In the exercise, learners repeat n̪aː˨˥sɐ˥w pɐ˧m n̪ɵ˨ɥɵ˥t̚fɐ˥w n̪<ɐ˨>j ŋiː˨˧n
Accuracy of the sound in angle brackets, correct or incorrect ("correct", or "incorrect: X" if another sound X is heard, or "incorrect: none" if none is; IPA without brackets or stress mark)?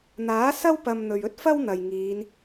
correct